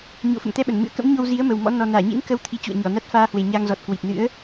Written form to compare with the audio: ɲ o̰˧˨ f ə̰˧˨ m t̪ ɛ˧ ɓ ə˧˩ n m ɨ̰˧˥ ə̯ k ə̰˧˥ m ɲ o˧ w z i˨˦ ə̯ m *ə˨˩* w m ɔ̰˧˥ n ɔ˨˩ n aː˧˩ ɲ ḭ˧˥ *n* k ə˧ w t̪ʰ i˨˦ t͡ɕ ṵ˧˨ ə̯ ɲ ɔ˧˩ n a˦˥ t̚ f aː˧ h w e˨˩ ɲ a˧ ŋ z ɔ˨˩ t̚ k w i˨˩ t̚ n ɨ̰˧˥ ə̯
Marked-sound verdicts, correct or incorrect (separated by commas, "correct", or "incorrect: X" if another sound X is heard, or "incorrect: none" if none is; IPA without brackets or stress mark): correct, correct